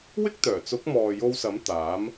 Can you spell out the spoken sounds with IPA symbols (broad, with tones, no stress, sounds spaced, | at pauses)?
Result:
w ɪ˥ k̚ t̪ œː˨˩ t͡s ʊ˨˥ k̚ m ɔː˨ j o˧ w s ɐ˨˥ m t̪ aː˨˥ m